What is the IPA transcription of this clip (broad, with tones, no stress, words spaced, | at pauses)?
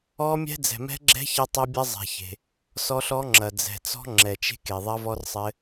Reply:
ɔ˦˥mʲɛ̤˦˥ d͡zɛ̤˨mɛ̤˦˥ɡ͡ǁɛ̤˦˥ çɐ˦˥tˤɘ˦˥bʲɐ˦˥ zˤɛ̤˨çe̤˨ | sɔ˦˥ɬɔ˦˥ŋ͡ǁɐ˨ d͡zɛ̤˨t͡sɔ̤˦˥ ŋ͡ǁɛ˨t͡ʃe̤˦˥k e˨ðˤɐ˦˥vɔ˦˥rsˤɘ˦˥